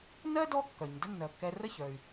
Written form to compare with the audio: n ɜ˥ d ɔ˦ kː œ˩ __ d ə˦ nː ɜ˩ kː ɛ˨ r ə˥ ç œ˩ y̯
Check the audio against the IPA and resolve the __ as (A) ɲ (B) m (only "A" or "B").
A